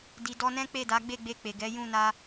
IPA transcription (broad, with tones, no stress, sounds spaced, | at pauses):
d i˨ d ɔ˧ n ɛ̃˦ k͡p e˦˨ d a˨˦ ɡ͡b e˦˨ ɡ͡b e˧ k͡p e˨ ɡ ɛ˨˦ j ũ˦˨ n a˧